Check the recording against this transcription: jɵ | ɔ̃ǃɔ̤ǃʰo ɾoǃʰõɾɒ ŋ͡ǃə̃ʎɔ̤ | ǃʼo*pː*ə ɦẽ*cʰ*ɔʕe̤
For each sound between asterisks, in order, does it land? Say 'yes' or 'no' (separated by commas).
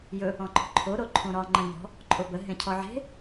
no, yes